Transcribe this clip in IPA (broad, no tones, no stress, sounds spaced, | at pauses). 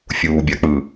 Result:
fʲ uː bʲ a k͡p ɯː